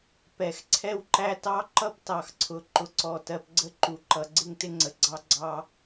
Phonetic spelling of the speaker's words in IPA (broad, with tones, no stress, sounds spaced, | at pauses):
p ɛ˨ x ǀʰ ɛ˦ w ǃ æ˦ t ɑ˦ ǃ ʌ˦ p t ɑ˨ x ǀʰ ʊ˨ ǃ ʊ˨ ǀ ɔ˨ t ɜ˨ p ɡ͡ǀ ə˦ ǃ u˨ ǃ ʌ˨ ɡ͡ǀ ɪ˦ ŋ t ɪ˦ ŋ͡ǀ ə˨ ɡ͡ǀ ɑ˦ ɡ͡ǀ ɑ˦